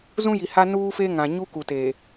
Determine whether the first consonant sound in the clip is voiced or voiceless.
voiced